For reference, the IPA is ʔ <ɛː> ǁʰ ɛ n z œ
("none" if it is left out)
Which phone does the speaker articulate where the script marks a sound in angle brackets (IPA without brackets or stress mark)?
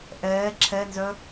ɛː